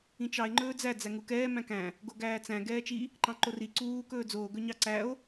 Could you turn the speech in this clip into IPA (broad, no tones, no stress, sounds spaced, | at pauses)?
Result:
ĩ t͡ʃ ɑ e̯ ŋ͡ǃ ɵː d͡z æ d͡z æ ŋ u k ɛː m æ̃ k æ̃ | ɡ o ɡ æː t͡s æ̃ ɡ ɛː t͡ʃ i | ǃ ɑ̃ ǃ o r i ǀ uː k ɵː d͡z oː ɡ ɵ ɲ ɑ ǀ æ o̯